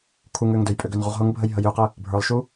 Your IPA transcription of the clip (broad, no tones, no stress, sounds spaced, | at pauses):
kʰ u ŋ ø ŋ d ø j pʼ ø ɡ ø n ʁ u ʁ ɦ ʊ ŋ bʱ ə j ɦ ə j ø q ə | bʱ ə˞ lˠ ʃ u